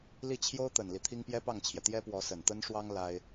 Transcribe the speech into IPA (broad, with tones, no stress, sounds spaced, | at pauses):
l i˥˩ t͡ɕʰ j o˥ ʊ̯ t̪ ə˨˩ n l i˦ t̪ʰ i˥ ŋ p j ɛ˥ p ɑ˥˩ ŋ t͡ɕʰ j ɛ˩ t̪ j ɛ˥ p w ɔ˧˥ s ə˨˩ n t̪ ə˥ n ʂ w ɑ˥ ŋ l a˥ ɪ̯